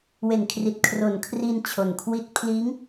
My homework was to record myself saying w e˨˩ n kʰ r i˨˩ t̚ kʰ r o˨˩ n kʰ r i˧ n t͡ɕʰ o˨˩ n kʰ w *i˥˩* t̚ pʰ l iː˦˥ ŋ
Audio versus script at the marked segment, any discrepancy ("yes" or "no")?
yes